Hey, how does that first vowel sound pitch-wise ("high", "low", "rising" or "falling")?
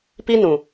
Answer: high